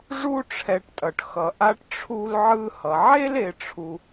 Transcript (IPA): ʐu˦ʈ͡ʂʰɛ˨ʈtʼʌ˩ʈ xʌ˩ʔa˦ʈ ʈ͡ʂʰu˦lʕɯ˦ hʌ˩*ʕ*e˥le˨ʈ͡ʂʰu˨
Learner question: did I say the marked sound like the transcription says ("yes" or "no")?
yes